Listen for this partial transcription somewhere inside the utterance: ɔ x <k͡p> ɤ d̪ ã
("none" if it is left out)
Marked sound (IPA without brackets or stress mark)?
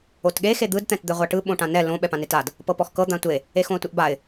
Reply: k